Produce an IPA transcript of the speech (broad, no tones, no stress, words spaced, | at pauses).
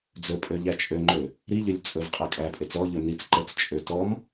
d͡zɵpʼø ʎæt͡ʃʼøŋ͡ǃø | ɾiʎølʲ t͡sʼɵv qʼækʼæpʼet͡s ɔʎɵ nit͡s ǃət͡st͡ʃʼø tɔm